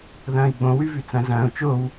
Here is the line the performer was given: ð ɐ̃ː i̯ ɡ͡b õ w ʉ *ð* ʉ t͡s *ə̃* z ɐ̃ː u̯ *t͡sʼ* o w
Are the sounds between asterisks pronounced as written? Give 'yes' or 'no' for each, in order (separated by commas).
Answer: no, no, no